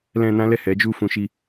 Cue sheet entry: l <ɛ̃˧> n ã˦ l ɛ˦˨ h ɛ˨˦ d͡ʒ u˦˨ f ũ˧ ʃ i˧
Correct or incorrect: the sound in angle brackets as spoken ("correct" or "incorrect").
correct